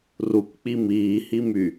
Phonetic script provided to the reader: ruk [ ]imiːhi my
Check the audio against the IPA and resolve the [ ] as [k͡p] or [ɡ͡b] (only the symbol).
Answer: k͡p